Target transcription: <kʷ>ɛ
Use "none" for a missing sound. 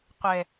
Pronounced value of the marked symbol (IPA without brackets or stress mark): qʷ